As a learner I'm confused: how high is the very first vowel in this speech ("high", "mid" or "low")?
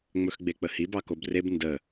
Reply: mid